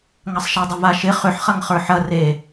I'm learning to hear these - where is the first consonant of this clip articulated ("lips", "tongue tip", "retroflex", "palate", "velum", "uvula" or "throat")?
velum